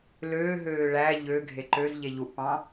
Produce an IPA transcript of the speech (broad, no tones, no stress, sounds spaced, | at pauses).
l øː ɦ øː ɭ æ ʎ ø ɡʱ e ǃ ø z ʎ e ʎ u ʔ p ɑ̃